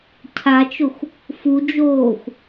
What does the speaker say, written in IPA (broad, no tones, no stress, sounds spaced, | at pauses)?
cʰ a t͡ʃ ʊ xʷ | f u d͡ʒ oː xʷ